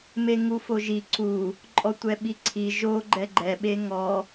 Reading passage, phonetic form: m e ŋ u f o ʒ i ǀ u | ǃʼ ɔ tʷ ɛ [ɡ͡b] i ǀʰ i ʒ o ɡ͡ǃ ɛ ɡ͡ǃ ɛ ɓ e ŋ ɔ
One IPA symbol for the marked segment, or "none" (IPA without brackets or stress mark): ɓ